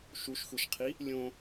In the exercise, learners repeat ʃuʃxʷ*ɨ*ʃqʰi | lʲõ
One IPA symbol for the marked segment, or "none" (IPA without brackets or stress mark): e